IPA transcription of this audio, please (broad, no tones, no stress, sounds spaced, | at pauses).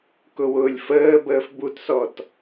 k ʊ w ʊː lʲ f əː b əː f b u t s ɔ t